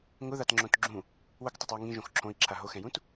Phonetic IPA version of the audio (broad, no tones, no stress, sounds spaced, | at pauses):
ŋ ʊ ð a t ŋ͡ǁ õ t ɡ͡ǁ ũ | w ʊ k tˤ a tˤ w o ŋ ĩ ʒ õ x ǁʰ õ i̯ ǁʰ a ɦ o x ɛ̃ j ũ t